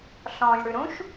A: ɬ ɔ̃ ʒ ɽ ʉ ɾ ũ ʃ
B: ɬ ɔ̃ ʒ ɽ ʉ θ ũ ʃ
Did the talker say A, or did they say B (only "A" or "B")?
A